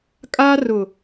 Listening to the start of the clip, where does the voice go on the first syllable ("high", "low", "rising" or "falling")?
high